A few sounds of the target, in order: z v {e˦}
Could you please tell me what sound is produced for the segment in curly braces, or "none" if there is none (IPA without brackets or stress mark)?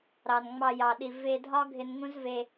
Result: e˧